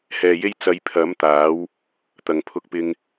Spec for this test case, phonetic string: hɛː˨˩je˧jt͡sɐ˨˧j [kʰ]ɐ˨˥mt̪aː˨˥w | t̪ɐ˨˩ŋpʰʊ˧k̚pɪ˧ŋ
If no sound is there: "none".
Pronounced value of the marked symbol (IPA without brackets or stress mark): pʰ